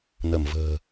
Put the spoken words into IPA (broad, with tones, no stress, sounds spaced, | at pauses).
n ə˧˩ m v ə̤ː˨˩